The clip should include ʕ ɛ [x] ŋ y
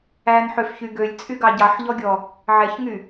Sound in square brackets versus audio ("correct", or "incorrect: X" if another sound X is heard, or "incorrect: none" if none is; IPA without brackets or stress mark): incorrect: ç